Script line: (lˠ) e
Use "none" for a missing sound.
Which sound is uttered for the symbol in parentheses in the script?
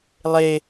lˠ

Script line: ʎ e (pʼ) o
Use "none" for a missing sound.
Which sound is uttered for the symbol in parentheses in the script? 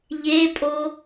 pʼ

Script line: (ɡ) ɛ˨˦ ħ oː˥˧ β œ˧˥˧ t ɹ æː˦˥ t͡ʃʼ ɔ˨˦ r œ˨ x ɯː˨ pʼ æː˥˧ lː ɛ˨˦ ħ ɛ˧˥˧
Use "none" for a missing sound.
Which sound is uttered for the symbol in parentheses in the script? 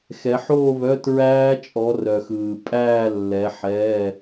x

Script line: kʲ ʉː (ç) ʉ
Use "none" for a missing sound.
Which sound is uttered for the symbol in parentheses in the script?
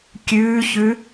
ç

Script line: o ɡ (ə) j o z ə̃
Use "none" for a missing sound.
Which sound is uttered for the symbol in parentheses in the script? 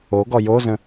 ɔ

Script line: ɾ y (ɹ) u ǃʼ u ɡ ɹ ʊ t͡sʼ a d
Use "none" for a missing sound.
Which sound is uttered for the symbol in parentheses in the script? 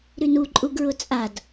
n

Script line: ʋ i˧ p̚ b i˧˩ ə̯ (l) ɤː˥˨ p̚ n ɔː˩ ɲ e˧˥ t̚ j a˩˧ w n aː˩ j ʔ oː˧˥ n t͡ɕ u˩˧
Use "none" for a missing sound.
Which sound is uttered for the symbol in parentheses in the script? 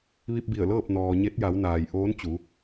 l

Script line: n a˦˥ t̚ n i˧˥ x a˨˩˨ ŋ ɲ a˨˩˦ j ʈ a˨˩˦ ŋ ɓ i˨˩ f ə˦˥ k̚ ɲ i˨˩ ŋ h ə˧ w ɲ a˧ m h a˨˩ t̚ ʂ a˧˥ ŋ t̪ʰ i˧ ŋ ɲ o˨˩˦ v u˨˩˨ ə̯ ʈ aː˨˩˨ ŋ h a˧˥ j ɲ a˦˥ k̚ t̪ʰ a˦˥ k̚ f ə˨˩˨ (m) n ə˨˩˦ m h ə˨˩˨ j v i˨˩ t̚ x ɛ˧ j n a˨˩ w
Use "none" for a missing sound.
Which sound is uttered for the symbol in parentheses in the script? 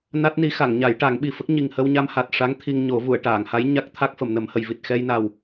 m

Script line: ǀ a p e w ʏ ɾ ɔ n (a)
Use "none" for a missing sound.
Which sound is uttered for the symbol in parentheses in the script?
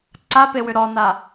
a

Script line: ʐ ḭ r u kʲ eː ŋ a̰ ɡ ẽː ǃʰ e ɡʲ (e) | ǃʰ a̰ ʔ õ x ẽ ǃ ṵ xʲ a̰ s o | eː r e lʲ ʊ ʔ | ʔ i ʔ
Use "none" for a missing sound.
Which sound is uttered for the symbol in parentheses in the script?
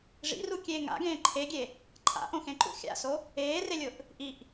e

